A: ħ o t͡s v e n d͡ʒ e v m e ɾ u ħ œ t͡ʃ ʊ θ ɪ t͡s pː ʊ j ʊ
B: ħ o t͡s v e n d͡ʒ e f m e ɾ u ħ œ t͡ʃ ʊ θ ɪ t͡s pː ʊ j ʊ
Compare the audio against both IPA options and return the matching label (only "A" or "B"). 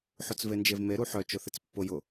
A